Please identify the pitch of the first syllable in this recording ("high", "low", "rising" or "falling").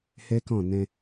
high